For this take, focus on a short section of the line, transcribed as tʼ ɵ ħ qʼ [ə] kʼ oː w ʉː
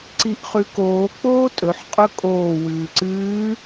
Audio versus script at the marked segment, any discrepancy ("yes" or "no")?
yes